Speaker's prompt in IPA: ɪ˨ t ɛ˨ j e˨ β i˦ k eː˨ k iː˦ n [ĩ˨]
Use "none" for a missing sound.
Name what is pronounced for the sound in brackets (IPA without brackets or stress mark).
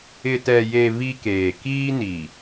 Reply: i˨